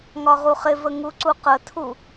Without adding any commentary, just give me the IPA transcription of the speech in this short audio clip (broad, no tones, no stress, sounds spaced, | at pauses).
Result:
ŋ ɒ ʁ u χ ɪ v ə ŋ u ǀ u q ə tʰ u